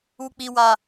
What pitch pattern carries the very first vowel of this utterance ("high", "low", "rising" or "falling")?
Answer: high